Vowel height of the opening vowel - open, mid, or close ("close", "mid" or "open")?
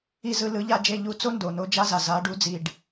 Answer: close